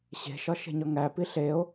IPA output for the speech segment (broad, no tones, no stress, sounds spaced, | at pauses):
ɕ e̤ ʃ ɒ ʃ e̤ ɲ ɒ ŋ æ p i ɬ e o̯